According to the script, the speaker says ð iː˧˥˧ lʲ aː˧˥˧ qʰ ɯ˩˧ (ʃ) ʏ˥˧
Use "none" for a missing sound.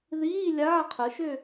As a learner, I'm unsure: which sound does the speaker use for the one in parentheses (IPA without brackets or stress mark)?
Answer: ʃ